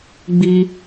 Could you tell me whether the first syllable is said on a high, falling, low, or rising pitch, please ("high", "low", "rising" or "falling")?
high